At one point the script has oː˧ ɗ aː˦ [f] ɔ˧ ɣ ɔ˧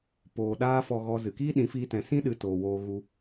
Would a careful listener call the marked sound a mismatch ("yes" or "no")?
no